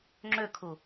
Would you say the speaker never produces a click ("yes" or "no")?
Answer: no